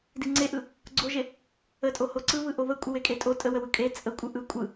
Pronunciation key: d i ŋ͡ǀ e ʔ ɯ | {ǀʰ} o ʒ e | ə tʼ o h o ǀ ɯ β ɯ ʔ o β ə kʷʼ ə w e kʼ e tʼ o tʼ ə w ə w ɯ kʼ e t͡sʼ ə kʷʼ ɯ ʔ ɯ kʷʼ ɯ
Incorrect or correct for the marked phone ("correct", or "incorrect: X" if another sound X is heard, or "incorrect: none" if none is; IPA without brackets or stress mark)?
incorrect: ɡ͡ǀ